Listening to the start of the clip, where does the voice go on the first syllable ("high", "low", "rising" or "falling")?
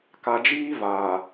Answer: low